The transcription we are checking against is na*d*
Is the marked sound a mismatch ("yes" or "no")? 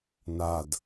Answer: no